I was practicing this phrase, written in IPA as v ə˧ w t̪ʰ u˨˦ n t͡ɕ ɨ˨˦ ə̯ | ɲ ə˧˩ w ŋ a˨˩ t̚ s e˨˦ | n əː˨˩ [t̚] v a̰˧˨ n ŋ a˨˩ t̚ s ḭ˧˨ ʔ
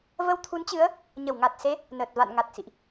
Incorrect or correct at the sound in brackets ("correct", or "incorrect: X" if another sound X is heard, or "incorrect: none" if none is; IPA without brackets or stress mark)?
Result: correct